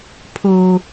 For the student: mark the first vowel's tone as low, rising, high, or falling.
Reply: low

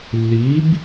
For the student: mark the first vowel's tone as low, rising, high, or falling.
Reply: rising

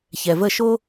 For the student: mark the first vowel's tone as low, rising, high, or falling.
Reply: low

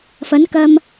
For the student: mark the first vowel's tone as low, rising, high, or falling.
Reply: rising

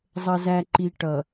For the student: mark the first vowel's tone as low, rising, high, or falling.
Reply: low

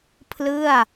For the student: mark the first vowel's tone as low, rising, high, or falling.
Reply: falling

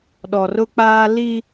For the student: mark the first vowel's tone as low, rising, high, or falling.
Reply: low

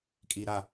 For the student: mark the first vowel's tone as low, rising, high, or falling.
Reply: low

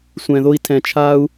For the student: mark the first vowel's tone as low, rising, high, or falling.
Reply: low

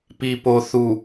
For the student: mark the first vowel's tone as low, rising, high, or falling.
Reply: low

